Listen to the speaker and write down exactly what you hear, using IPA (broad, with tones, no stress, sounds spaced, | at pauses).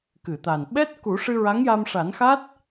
k ɨ˨˩˨ t̪ a˨˩ n ɓ ɛ˦˥ t̚ k u˨˩˦ ʂ ɨ˧ ɹ a˧˥ ŋ j a˧ m ʂ a˨˩˦ n x a˦˥ t̚